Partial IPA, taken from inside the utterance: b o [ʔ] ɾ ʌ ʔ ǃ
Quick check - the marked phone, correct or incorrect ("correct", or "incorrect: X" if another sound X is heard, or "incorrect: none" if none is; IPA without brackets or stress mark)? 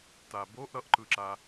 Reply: correct